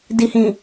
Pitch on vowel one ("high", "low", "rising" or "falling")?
low